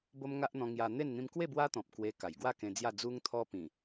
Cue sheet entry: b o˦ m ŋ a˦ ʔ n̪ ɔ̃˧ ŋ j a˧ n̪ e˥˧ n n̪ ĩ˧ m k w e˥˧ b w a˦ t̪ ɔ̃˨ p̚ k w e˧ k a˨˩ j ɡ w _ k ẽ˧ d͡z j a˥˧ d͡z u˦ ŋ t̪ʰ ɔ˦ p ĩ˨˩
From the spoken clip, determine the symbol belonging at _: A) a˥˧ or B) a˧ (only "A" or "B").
A